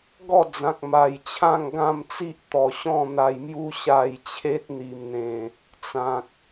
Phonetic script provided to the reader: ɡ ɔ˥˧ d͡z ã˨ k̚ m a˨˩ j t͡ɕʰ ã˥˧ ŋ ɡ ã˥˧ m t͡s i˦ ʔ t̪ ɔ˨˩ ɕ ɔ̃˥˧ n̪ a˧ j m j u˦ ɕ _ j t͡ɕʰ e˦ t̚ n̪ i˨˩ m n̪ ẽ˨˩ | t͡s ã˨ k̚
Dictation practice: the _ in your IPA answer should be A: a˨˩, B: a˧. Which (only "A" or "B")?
B